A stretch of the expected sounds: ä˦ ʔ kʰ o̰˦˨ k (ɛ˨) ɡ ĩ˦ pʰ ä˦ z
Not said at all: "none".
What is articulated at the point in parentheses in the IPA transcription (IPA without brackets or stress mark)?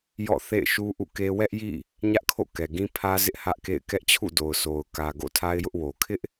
ɛ˨